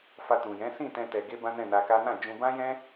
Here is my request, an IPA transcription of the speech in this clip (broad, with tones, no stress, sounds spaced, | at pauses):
f a˧ t ũ˨ j ɛ̃˨˦ s ĩ˦˨ t ɛ̃˧ t ɛ˨ ɡ e˧ b ã˦ n ɛ̃˦˨ n a˧ k a˦ n ã˦˨ d͡ʒ ũ˧ b ã˦ j ɛ̃˦